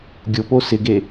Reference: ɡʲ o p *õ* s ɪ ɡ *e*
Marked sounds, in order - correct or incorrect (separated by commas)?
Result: incorrect, correct